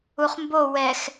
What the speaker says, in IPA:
uχmbo wɛx

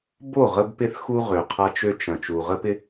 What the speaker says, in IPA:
bo˦˨ ʁə˦bpɪ˦θxu˦ ʁø˨qʰa˦t͡ʃø˦ t͡ʃɐ̃˨ t͡ʃu˨ʁə˦pɪ˦

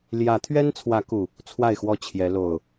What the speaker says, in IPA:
ljä˨˦t̪ʰɥɛ˦nt͡sʰwä˨˦ku˨˩ | t͡sʰwa˥˨ɪ̯xwɔ˥˨t͡ɕʰjɛ˨˦ lo˨˩ʊ̯

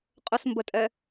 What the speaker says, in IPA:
qʼəsmbətʼɛ

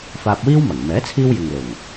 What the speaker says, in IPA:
faː˧p̚ wiː˥wmɐ˨˩ŋ mɛː˨˥t͡sʰiː˧w jɪ˨ŋ lʊ˨˩ŋ

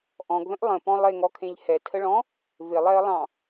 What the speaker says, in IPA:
ʔɔ̃ɡðə̃ʔ lˠə̃pɔ̃ lˠeŋɔkʰẽʎ hɛtʰəɭɔ̃ | vɪlˠɛə̯lˠɑ̃

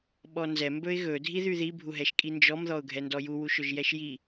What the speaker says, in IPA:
ɓɔnzɛ mbɵɪ̯ɣɵ dʱiðyði bʱuɦɛʃkʼind͡ʒɔm ðɔʊ̯ɡʱɛndɔju wuʃɵʒjɛʃji

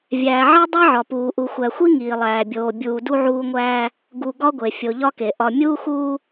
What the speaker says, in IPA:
vʲæː˨ʕe˦ dˤe˦ʕɒ˨puː˨ ʔu˨xʷæ˨xʷi˦ ŋiː˨lˠæː˨bʲoː˨ bʲuː˨du˦ʕuː˦ŋʷæː˦ | ɡu˨ ɡɒ˦ɡʷe˨ fʲo˨ʎɒ˦ke˨ ʔɒ˨ mʲuː˦xuː˦

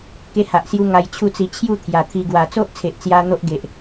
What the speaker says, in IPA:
ke˧ha˨ʔsju˧ ŋa˧jt͡ɕʰu˥˧t͡si˧ t͡ɕʰju˥˧ t̪ʰja˨˩t̪ʰi˧ ɡwa˨˩ t͡so˦ʔt͡sʰe˨ʔt͡sja˧ n̪o˦ʔɡe˨ʔ

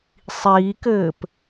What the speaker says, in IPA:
sˤiːkɘːp

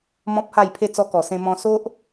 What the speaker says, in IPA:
mɔ̃˦p̚ha˥˧jpʰe˥˧ t͡sɔ˧kɔ˨˩sẽ˧ mɔ̃˧ so˦ʔ

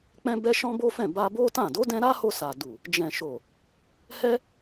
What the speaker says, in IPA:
k͡pɛ̃˧bɛ˧ ʃɔ̃˦bo˦fɛ̃˦˨ ba˧bo˦tã˦˨ do˨˦dɛ̃˧ ɾa˦ho˧sa˨du˨ | d͡ʒɛ̃˨ʃo˨ | hɛ˦

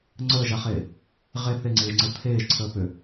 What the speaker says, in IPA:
ŋ͡ǀəːʒaχeː | ʁe θeŋ͡ǀeːʒŋ͡ǀɘ t̪ʰeːʒǀʰəː pʏ

